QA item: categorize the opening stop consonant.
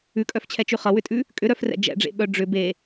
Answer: ejective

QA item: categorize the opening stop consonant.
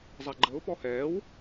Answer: click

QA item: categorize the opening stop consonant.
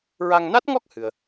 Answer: plain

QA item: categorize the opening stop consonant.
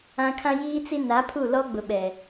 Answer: aspirated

